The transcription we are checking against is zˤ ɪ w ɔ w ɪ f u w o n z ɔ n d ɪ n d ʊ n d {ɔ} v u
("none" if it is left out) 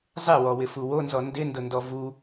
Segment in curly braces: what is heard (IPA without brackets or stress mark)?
ɔ